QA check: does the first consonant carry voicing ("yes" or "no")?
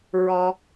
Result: yes